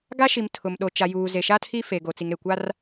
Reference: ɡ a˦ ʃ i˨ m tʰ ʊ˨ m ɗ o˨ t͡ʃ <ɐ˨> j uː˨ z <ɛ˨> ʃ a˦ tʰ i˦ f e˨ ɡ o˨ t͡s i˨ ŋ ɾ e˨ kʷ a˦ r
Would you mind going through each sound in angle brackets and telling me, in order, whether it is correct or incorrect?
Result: incorrect, incorrect

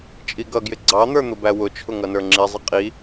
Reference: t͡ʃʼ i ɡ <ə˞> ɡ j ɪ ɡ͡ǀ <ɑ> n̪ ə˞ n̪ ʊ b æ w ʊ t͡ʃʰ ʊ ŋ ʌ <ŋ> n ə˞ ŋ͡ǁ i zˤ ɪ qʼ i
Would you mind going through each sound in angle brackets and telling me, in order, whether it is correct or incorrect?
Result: incorrect, correct, incorrect

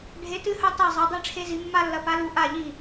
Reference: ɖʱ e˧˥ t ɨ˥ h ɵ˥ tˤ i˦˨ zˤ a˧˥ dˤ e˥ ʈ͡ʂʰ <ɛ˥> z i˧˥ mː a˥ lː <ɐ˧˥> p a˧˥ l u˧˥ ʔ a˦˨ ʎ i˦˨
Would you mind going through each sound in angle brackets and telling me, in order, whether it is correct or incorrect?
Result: incorrect, correct

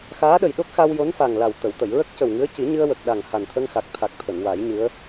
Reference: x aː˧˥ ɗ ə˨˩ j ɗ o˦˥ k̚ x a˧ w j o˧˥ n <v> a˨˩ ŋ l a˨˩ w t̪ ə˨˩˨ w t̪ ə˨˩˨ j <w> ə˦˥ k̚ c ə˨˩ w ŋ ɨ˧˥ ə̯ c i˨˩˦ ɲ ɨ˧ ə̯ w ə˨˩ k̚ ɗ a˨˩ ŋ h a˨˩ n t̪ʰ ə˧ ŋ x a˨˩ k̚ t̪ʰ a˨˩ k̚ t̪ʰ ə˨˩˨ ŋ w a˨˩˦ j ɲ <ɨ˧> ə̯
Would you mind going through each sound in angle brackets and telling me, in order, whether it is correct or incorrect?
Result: incorrect, incorrect, incorrect

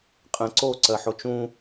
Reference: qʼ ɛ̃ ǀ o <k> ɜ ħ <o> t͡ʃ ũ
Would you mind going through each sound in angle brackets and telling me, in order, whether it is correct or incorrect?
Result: incorrect, correct

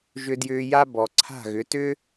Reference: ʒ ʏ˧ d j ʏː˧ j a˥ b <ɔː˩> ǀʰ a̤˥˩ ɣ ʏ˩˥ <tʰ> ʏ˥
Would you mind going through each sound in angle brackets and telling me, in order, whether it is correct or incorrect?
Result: incorrect, incorrect

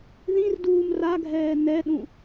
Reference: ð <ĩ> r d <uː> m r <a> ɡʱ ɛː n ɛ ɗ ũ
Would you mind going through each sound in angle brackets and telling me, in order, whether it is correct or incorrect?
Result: correct, correct, correct

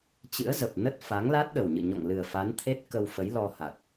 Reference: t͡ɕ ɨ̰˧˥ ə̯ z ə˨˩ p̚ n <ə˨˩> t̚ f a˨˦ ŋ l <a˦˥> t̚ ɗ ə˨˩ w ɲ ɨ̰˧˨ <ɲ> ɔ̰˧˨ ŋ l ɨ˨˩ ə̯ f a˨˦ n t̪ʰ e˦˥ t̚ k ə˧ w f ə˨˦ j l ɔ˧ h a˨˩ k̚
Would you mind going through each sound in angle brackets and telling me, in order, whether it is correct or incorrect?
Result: incorrect, correct, correct

